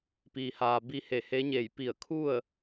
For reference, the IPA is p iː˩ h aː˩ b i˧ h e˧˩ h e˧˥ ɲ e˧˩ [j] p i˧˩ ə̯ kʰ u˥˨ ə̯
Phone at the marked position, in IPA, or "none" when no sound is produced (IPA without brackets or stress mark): j